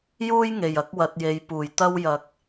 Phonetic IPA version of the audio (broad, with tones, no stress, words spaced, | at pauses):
juː˧j ŋe˨˩jɐ˧k̚wɐ˨t̚je˨j puː˨˩jt̪ɐ˧w jɐ˨k̚